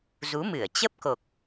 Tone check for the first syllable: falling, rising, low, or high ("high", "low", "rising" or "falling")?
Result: rising